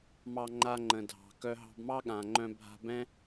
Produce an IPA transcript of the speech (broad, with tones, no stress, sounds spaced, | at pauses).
m ɑ˧ ŋ͡ǃ a˧ ŋ͡ǃ ə̃˩ dʱ ɑ̤˩ k œ˧ ɦ ɑ̤˧ b m ɑ˥ ɠ ã˩ ŋ͡ǃ œ̃˧ bʱ a̤˧ b ɛ̃˥